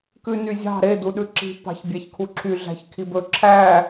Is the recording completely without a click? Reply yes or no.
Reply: no